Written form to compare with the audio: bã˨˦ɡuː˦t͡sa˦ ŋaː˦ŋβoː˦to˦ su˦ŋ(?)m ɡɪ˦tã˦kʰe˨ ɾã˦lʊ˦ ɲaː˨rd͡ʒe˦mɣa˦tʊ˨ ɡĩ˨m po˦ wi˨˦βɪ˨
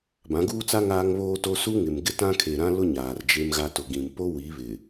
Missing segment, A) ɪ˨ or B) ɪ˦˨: A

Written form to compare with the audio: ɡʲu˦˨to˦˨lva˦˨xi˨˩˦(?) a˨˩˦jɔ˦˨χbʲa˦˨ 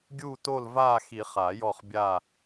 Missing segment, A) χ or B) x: A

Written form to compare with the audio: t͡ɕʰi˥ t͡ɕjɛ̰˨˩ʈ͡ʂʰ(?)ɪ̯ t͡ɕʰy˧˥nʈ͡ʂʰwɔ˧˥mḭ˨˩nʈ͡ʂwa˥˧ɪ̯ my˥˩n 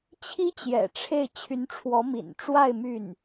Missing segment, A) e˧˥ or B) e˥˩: B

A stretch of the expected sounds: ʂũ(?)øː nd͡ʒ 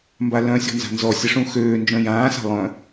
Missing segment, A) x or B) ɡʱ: A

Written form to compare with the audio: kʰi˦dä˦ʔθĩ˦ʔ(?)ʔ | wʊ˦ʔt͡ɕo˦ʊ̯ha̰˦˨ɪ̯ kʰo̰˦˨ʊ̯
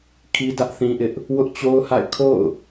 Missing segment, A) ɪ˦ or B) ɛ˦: A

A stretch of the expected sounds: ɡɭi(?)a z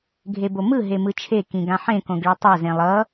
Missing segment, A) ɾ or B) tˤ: B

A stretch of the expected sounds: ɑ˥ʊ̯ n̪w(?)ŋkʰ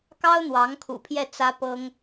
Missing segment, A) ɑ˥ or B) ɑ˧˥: B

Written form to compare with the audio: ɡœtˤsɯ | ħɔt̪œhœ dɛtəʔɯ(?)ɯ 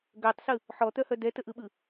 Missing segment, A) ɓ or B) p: A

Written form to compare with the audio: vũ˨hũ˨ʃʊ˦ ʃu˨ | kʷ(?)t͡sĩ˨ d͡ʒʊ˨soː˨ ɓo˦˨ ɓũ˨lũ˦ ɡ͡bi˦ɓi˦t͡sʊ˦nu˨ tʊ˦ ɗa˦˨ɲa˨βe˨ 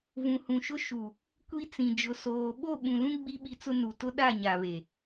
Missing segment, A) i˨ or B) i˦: B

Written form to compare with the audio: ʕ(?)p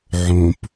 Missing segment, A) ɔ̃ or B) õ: B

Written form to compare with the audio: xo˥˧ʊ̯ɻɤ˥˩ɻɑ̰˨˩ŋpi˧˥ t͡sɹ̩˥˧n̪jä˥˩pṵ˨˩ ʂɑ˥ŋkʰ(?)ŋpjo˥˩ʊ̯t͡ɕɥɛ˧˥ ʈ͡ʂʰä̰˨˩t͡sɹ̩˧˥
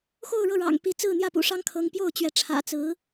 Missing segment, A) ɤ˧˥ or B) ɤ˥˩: A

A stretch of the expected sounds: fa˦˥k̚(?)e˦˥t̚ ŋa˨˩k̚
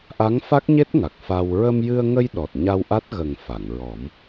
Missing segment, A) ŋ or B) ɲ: B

